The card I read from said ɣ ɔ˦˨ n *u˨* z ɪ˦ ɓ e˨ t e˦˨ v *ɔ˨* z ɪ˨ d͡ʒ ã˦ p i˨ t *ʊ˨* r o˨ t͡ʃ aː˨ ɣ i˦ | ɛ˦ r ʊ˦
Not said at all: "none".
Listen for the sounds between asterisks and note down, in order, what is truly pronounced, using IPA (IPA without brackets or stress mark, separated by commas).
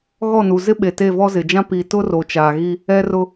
u˨, ɔ˦, ʊ˦